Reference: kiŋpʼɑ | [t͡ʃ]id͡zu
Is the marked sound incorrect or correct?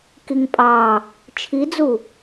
incorrect